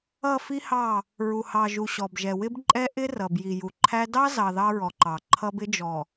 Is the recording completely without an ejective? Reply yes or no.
no